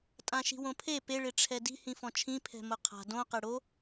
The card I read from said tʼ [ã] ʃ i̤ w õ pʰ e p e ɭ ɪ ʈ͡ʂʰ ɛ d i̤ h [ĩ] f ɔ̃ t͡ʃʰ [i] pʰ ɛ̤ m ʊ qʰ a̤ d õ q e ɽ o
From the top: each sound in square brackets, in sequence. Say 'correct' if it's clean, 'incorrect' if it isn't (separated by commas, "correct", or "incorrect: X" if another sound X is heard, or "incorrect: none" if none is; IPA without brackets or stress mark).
correct, correct, incorrect: ĩ